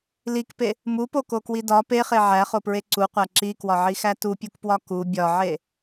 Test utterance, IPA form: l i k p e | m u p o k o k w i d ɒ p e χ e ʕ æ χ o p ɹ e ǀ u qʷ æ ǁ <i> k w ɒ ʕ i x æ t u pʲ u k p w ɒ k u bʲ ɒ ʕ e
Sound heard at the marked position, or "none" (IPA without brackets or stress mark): i